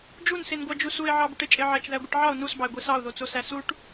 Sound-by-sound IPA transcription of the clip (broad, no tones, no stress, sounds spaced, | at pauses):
d͡ʒ u n s e n ɡʷ ɑ d͡ʒ u s u e̯ ʕ ɑ b y ʈ e t͡ʃʼ e ʕ æ t͡ʃ ð æ ɡʷ i ʈ ʕ ɑ o̯ n u s b ɑ e̯ ɡʷ i s ɑ o̯ ð o t͡s o s æ s u ʈ